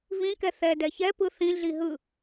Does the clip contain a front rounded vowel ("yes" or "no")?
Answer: no